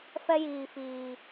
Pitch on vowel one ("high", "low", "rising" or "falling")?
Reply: high